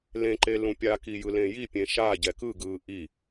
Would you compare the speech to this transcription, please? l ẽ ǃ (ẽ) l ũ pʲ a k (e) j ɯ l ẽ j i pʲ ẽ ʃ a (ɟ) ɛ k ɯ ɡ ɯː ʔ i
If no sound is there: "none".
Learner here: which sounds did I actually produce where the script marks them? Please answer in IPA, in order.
e, i, ɟ

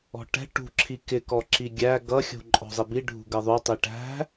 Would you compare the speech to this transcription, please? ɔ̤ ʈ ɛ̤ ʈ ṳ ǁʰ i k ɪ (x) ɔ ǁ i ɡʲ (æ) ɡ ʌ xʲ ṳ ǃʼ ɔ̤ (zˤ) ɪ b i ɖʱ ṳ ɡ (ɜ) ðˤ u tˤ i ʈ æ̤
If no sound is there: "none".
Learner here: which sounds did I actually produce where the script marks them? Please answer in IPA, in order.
k, æ, zˤ, ɜ

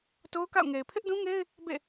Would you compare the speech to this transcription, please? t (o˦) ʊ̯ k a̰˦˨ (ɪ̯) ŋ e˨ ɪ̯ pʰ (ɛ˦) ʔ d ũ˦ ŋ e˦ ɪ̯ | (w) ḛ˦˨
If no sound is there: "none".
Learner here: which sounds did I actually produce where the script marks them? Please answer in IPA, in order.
o˦, ʊ̯, ɪ˦, b

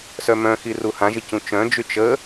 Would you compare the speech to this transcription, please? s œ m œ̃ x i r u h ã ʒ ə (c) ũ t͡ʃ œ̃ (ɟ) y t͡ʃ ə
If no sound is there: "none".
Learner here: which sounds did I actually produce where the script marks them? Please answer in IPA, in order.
c, d͡ʒ

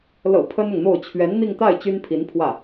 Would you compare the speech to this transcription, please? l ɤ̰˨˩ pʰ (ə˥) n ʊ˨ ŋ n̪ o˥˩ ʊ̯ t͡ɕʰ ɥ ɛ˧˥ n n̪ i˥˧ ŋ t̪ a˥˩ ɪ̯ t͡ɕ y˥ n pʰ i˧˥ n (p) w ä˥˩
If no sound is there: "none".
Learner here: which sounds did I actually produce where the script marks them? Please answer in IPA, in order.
ə˥, pʰ

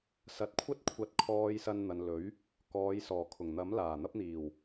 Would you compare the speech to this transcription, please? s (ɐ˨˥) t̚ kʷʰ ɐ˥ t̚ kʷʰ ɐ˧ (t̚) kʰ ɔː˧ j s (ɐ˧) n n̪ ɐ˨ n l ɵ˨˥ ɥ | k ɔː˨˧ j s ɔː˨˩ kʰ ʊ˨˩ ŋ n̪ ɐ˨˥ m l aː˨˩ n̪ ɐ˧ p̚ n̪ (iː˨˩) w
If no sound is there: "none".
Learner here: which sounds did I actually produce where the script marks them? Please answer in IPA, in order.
ɐ˨˥, t̚, ɐ˧, iː˨˩

